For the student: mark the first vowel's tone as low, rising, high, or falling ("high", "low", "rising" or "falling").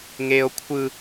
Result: high